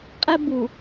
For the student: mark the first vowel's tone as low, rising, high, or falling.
high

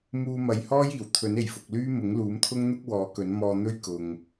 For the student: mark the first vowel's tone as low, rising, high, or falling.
low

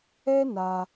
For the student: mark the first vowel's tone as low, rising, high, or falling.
high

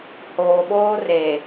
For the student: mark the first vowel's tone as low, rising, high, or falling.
low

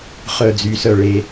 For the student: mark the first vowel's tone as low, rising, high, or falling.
low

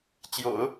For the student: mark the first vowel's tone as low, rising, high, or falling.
low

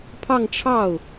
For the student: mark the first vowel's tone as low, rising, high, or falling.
falling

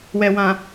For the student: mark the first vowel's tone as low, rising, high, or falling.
low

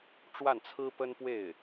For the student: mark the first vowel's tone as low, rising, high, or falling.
falling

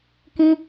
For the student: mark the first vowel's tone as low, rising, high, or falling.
high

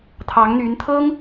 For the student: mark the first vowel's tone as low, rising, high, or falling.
rising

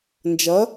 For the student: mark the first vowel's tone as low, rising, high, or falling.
rising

